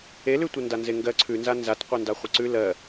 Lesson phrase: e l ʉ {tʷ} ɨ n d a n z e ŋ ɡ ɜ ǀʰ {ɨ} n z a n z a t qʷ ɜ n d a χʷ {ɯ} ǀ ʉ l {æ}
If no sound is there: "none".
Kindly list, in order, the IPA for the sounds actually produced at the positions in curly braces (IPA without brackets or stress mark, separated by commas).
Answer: tʷ, ʉ, ə, ɜ